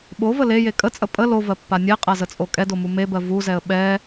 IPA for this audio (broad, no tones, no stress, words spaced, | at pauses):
ɓovə leje kʼət͡sʼə pʼə lovɜpːa nʲɛqʼazət͡sʼo kʼɛdomu mebɜ vuzɛə̯ ɓɛ